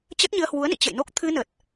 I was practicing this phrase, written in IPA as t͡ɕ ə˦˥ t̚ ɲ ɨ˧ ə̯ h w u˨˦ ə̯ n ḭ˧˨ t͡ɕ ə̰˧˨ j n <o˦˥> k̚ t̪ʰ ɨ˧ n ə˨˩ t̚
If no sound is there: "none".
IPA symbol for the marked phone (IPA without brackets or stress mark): o˦˥